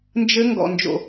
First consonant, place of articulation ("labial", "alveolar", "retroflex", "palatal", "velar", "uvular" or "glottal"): alveolar